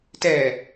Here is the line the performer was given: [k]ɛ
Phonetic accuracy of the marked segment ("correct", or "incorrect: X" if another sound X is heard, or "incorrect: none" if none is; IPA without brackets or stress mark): incorrect: t